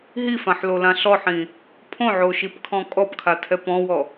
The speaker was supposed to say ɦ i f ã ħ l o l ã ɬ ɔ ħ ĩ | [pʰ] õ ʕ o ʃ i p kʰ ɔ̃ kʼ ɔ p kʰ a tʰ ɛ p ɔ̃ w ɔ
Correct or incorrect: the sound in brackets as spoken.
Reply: correct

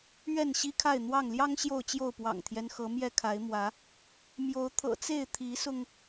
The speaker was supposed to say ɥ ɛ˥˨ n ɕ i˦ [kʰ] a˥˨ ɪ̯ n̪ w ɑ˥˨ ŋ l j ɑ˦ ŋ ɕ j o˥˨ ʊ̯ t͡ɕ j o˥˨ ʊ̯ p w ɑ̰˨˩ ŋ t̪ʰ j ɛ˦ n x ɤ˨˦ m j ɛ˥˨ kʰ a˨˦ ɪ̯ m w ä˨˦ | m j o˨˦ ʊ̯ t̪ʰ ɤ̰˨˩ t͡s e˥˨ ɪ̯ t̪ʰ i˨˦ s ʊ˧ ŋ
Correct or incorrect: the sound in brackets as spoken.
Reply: correct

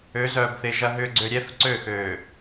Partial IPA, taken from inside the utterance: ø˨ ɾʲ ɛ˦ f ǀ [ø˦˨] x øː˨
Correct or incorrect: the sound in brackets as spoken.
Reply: correct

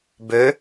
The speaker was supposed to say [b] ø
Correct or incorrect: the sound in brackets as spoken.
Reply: correct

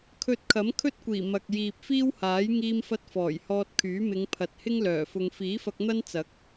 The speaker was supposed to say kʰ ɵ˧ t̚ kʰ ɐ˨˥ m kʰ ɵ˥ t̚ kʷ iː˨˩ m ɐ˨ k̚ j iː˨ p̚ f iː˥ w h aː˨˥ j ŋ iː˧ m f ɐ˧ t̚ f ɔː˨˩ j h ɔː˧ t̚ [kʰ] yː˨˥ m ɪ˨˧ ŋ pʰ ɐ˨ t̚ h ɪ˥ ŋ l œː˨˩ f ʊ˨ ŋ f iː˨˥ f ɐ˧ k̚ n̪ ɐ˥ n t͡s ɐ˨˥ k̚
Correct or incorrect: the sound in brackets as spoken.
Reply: correct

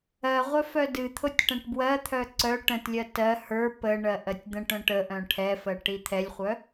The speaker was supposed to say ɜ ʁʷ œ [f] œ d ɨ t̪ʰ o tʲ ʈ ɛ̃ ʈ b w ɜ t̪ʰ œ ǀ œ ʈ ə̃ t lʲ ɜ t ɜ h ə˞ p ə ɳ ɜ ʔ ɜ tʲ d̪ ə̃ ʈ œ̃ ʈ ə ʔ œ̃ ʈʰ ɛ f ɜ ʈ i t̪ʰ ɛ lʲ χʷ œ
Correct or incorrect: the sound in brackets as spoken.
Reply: correct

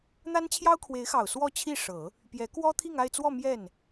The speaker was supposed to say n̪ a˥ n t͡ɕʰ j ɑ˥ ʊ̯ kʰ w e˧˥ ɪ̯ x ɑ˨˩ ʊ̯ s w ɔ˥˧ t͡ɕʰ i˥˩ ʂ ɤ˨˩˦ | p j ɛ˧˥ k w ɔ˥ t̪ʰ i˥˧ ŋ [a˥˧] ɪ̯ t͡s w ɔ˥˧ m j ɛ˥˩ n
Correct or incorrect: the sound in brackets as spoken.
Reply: correct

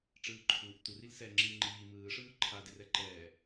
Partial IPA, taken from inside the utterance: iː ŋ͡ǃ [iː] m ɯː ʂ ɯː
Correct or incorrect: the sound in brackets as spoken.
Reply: correct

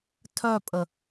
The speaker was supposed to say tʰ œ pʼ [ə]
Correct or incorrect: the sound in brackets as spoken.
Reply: correct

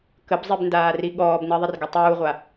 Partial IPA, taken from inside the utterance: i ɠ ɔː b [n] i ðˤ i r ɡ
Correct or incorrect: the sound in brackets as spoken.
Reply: correct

